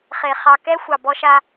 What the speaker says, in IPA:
χe˨ χɑ˨kɛ˦ xʷɑ˨bɔ˦ʃa˦

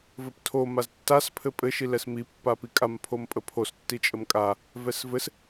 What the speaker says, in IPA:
vɘptʰo maztːas pʰɘpʼɘ ʃilɛsmi pːapikʼam pʰompʼəpʰos tːit͡ʃʼəmkʼa | vɛsvɘs

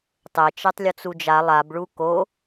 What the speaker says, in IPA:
tˤet͡ʃɛtˤ lʲot͡sud͡ʒa lˠabɭu ko

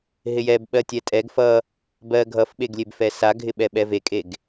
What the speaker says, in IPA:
ɦɪjɛb ɓɜtʲɛtʼɛɡ fʌ | bɜ ɡʱʌfɓeɡ lʲebfɛsaɡʱɪ ɓɛɓɛvekʼeɡ

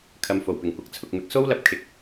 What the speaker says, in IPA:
kʰɐ˨˧mfo˨˩wpɪ˨˩ŋkʷɐ˨k̚ t͡sʰʊ˨k̚mɪ˨k̚ so˥wlɐ˧p̚ kʰɪ˨k̚

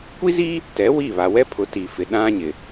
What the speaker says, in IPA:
kʷi˦zi˦ | tɛ˨˦wi˦˨βa˨ wɛ˦ pʰʊ˨˦ ti˨fɪ˨ ɗã˦ ɲɪ˨

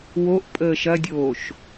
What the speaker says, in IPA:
woʔ pʼəːʃɐdʲoːʃ

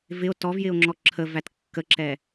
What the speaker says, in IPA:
vɪo̯ tɔvjɪo̯ ŋ͡ǁɔǁʰəvæt kːəǁɛ

